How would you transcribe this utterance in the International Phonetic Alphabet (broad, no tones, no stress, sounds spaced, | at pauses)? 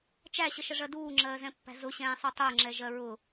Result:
t͡ʃ æ ɕ ə ʃ ə ʐ ɜ d uː ŋ͡ǁ ɜː z ɛ̃ pː æ̤ z ʊ ɕ ɛ̃ː sˤ u tˤ ʊː ŋ͡ǁ ɛ ʒ ɜ ɹ ʊ